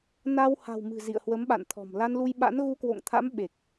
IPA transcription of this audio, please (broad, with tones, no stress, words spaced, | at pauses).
na˧w ha̤˨˩wmɨ̤˨˩ zḭ˧˨ə̯hwə˨˦mɓa̰˧˨nt̪ʰɔ̤˨˩m la˧nlu˧jɓa̰˧˥n ɣu˧kwo̰˧˨ŋt̪ʰa̰˧˥m ɓe˨˩k̚